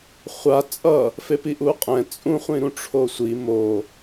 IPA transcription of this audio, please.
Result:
χʷ a t͡sʼ ʌ | f e p i ʔ u qʼ ɛ̃ t͡sʼ ũ χʷ ĩ ɾ ũ ʈ͡ʂʰ o sʷ i m o

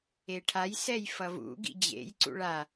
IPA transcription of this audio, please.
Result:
e ʈʰ a j s ɛ j f ʌ v ṵ ɡ ḭ d͡ʑ ḛ j ǀ ṵ ɭ a

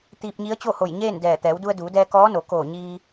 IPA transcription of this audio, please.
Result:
t̪ iː˧ p̚ ɲ i˧˥ ə̯ t͡ɕ o˥˨ h o˧˩ j ɲ eː˥˨ n d ɛː˧˩ t̪ ɛː˩˧ w d u˧ ə̯ d uː˩˧ d ɛː˧ k ɔː˧˥ n o˩˧ k oː˧˩ ɲ iː˧

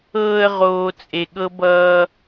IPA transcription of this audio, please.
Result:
ɤː˧ ə̯ ʁ oː˨ t͡sʼ e˨ ɠ ɤ˦ b ʌː˧

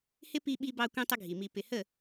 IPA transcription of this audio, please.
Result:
h ɪ˦ p i˧ ɓ i˧ b ɑ˧ kʷ ĩ˧ tˤ ə˦ ɡʱ i˨ m i˧ p ɪ˨ h ə˦˨

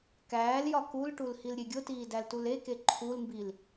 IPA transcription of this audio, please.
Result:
k æː l j ɒ k u l ʈ u l h i l ɾʲ e ɡʲ o t iː d æ l t u l e k e ǃʰ u l m b i l

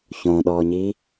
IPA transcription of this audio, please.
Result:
ç õ ɗ ɔ ɲ i

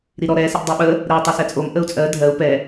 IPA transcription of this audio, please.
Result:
ɾ i ɾ ɔ ɾ ɛ s ɪ ʔ dˤ ɛ ɓ ə | ɾ ɛ u̯ tˤ ə s ɛ t͡sʼ o m ʔ ə u̯ t͡sʼ ɜ dʱ ɜ u̯ p ɛ

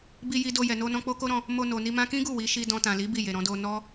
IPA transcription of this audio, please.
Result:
b i˧ j i˧ d o˧ j ɛ˨ n o˧ n ɔ̃˧ k͡p o˦ k o˦ ɾ ɔ̃˧ | m o˧ n o˨ n i˧ m ã˧ k ĩ˦ ɡ u˦˨ w i˨˦ ʃ i˧ d ɔ̃˧ t ã˨ l i˨˦ b i˦˨ j e˨ ɾ ɔ̃˧ d o˧ n ɔ˦

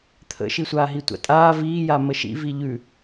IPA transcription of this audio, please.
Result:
t̪ʰ ə̰ ʃ i sʷ aː ɦ i tʷ a̰ tʼ aː v iː j a m ə ʃ ḭ v i ʎ ʉ

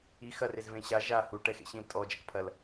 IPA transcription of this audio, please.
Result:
i x ɐ r e z v ẽ ɕ a ʒ a h u ʈ ɛ x ḛ ɕ ĩ l tʼ ɔ d͡ʒ ɐ k pʰ ɐ l

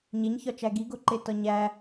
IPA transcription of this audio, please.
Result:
ɲ e ɲ ç ɒ t͡ʃ æ ɡ i ɡ o ǃ e t ɒ ɲ æ

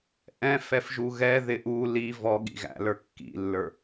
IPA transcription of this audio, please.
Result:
ʔ ɛ̃ f ɛ f ʒ u ɣ ɛ ð ɪ ʔ u l i v ɔ ɠ ḭ ɣ æ̰ l ə˞ kː ḭ lː ə˞

